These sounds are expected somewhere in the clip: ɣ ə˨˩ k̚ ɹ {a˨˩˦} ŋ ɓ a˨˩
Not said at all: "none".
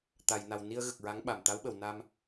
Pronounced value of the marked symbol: a˧˥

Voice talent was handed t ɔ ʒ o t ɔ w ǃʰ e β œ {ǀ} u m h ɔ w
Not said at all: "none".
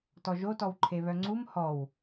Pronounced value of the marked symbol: ŋ͡ǀ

